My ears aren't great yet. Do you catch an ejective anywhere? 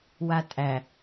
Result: yes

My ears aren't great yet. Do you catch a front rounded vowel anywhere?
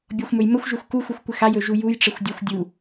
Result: no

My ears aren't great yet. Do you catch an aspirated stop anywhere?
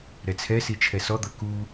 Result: yes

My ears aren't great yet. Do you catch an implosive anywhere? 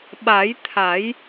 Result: yes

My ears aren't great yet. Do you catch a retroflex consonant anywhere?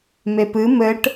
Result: yes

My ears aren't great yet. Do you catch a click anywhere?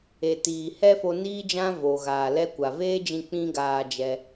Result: no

